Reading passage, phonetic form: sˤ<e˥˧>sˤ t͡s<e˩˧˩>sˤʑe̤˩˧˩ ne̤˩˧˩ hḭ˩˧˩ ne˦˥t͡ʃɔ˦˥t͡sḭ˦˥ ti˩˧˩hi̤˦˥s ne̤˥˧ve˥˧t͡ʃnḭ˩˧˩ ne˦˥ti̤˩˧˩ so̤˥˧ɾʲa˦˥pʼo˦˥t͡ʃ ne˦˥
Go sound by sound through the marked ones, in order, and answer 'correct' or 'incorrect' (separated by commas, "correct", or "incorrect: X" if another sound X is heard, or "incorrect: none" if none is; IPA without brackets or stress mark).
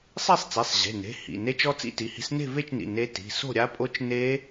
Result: correct, correct